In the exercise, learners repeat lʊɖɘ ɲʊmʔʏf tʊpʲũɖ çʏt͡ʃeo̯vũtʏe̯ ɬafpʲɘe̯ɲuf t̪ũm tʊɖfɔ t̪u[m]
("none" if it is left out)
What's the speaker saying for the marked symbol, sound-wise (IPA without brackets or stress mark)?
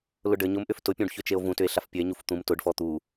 none